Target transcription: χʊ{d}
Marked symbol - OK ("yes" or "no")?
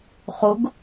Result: no